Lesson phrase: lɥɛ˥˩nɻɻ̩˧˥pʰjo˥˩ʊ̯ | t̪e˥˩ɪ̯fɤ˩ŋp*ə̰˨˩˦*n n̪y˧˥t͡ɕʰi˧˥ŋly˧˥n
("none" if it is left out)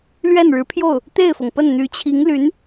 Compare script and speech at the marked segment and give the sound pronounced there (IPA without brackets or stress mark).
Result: ə˥˩